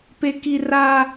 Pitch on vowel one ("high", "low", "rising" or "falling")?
high